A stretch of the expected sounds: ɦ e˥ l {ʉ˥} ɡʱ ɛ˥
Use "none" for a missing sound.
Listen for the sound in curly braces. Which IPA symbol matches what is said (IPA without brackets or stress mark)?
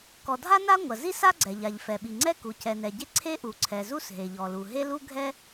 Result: u˥